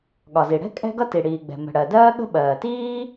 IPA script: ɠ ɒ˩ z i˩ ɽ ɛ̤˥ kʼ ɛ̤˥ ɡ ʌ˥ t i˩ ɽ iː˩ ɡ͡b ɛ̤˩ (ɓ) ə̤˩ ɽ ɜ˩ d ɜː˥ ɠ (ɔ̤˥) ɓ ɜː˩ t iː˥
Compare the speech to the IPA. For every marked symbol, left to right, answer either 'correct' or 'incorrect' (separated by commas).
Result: incorrect, incorrect